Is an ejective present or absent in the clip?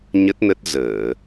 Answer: absent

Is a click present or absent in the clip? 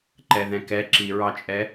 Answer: present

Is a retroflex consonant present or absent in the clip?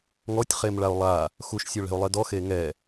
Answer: present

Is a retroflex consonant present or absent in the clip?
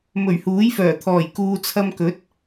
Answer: absent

